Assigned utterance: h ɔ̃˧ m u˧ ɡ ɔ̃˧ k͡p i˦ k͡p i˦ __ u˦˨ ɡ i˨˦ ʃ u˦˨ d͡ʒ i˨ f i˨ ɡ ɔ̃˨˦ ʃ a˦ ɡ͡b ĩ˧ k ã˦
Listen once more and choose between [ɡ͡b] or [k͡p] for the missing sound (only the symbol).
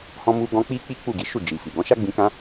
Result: k͡p